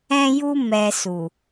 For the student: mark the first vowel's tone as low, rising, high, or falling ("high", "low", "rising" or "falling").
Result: high